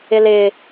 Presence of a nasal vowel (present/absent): absent